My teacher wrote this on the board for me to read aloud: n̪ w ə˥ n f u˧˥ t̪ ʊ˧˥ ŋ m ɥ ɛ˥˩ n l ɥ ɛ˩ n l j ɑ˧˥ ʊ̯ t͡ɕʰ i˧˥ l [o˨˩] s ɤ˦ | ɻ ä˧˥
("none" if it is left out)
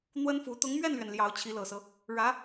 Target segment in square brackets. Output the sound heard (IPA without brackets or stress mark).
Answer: ɤ˨˩